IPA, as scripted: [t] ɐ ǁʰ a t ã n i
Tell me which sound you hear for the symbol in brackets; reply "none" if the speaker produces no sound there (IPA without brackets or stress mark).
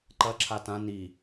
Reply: ǃ